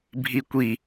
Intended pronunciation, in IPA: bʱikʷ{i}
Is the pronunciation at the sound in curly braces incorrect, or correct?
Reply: correct